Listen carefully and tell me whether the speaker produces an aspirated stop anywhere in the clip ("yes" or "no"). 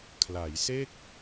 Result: yes